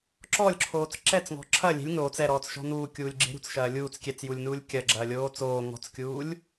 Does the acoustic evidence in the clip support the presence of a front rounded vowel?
no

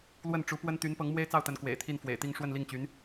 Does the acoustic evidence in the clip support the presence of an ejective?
no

